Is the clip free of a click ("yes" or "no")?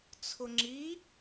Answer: no